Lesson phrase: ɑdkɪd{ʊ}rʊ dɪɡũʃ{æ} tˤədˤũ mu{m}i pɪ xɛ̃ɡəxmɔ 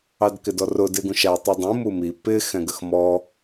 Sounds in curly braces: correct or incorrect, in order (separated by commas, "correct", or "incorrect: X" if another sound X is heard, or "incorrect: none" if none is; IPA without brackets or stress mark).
incorrect: ɔ, correct, correct